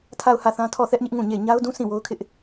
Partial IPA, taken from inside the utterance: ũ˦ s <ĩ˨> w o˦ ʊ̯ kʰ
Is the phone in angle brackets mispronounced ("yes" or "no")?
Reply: yes